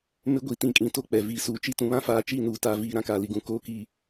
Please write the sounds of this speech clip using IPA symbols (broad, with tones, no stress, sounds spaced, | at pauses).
m ɪ˦ ɡʷ i˨ t ĩ˨ kʼ ĩ˨ t o˦ k͡p ɛ˨ v iː˨ s uː˨ t͡ʃ i˦ t ũ˨ β ã˦ f aː˨ t͡ʃ i˦˨ n uː˨ t a˨ v iː˨ ɾ ã˦ k aː˨ l i˨ ɡ ũ˨ k oː˨˦ k iː˨